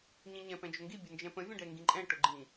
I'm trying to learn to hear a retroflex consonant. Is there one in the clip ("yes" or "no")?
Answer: yes